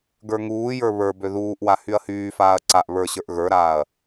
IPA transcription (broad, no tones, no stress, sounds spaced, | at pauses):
ɡ ə˞ ŋ uː j ə˞ β ə˞ b ø ð uː ʔ w a h y ɐ̯ h yː f aː ɐ̯ ǀ a ʔ β ə˞ ɕ ə˞ ʔ ɣ ə˞ ɾ aː ɐ̯